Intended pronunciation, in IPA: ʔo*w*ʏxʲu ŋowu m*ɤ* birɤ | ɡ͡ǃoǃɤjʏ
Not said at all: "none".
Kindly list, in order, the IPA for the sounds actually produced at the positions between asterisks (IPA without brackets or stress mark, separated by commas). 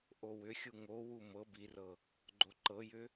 w, ɤ